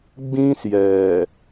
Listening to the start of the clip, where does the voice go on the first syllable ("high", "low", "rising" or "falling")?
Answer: high